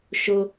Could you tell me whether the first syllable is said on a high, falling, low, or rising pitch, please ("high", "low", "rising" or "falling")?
high